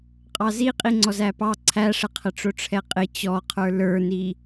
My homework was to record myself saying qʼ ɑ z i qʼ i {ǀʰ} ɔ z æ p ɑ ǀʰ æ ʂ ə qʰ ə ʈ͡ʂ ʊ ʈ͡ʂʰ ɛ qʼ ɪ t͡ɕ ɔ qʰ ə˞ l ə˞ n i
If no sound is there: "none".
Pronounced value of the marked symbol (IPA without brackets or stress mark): ŋ͡ǀ